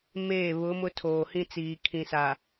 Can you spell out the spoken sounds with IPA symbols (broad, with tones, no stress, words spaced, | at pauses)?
meː˦˨βʊ˨˦mʊ˦ tʰoː˨hĩ˦t͡siː˨ kʰĩ˨sa˨